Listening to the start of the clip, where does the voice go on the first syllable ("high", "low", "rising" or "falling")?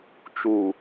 low